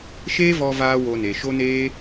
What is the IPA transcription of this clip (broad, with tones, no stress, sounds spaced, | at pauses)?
ʃ eː˦ v ɔ˧ v aː˦ w o˧ n e˨ ʃ o˦ n eː˦